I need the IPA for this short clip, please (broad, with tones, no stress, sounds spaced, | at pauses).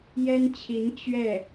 j ɛ˥ n t͡ɕʰ i˧˥ n t͡ɕ ɥ ɛ˥˩